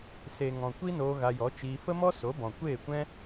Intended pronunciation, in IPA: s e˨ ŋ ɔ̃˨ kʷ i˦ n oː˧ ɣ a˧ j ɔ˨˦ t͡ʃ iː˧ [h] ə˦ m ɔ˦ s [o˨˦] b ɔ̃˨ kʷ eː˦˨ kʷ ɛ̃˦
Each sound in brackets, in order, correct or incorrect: incorrect: f, correct

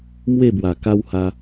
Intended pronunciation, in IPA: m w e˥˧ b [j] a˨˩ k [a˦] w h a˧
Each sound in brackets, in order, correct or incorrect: incorrect: w, correct

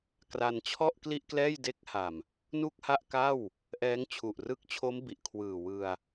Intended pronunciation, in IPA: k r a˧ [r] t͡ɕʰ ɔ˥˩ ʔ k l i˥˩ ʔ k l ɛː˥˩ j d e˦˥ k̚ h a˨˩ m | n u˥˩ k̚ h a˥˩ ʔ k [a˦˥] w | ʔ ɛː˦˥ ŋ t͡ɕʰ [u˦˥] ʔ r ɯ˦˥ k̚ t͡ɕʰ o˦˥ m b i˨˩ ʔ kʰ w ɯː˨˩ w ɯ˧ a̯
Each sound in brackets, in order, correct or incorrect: incorrect: n, incorrect: a˥˩, incorrect: u˨˩

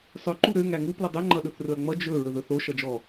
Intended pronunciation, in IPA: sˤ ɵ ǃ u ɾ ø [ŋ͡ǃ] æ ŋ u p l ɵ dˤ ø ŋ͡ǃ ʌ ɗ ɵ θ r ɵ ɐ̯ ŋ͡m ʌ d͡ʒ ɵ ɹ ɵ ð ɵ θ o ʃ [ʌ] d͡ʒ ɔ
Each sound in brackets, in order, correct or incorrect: incorrect: ŋ, correct

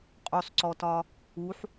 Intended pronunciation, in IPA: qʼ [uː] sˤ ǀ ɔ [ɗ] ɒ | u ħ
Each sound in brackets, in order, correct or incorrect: incorrect: u, incorrect: t

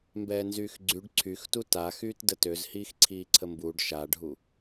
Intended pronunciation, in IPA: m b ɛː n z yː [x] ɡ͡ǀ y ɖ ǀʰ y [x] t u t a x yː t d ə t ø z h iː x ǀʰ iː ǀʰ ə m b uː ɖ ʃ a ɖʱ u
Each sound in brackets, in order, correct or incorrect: correct, correct

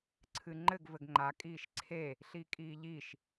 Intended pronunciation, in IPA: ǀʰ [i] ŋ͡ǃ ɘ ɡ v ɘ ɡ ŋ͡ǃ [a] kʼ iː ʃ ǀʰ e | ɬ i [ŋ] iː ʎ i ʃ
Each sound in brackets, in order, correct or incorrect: incorrect: ɨ, correct, incorrect: kʼ

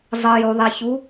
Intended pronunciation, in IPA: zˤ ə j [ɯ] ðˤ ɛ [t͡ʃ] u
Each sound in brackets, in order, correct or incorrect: incorrect: u, incorrect: ç

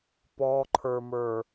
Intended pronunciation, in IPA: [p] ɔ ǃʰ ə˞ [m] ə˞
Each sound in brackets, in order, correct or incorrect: correct, correct

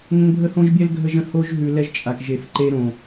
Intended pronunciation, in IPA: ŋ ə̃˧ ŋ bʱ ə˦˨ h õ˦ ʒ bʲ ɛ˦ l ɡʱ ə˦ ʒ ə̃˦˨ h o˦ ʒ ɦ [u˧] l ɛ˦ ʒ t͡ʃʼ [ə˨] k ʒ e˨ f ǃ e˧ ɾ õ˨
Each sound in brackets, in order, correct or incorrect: incorrect: ʉ˧, incorrect: a˨

